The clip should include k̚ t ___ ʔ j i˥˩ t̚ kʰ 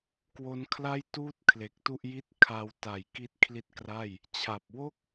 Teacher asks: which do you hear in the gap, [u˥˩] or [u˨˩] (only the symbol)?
u˥˩